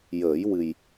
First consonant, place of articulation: palatal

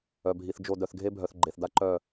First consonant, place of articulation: labial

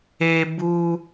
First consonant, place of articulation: labial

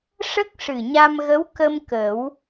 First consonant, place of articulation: retroflex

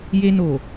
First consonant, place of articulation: palatal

